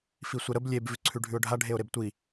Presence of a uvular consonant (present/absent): absent